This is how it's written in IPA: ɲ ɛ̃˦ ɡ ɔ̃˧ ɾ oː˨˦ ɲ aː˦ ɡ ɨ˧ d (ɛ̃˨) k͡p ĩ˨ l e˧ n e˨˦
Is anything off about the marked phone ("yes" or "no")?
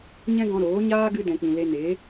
no